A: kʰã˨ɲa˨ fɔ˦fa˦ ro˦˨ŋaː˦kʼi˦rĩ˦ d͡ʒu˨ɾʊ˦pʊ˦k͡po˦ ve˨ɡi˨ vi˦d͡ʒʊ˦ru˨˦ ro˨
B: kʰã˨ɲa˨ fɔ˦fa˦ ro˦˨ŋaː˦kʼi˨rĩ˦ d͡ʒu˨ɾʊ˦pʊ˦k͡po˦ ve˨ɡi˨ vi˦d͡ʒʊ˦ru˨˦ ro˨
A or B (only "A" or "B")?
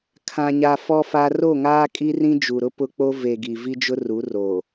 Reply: A